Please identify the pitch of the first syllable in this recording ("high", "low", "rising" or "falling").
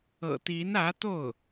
low